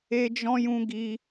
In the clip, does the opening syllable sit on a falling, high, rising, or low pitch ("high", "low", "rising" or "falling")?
high